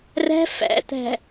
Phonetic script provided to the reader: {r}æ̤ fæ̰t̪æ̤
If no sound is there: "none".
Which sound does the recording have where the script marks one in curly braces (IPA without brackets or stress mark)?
r